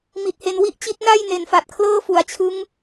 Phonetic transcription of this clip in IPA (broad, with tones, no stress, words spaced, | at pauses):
mi˨˩t̚he˧n wi˦˥ʔt͡ɕi˦˥t̚ na˥˩j ne˩˦n fa˨˩t̚kʰlɤː˥˩fu˨˩a̯t͡ɕʰɯ˦˥ŋ